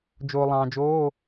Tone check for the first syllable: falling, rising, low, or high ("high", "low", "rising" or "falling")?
low